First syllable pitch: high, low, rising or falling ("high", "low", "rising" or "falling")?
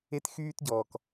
high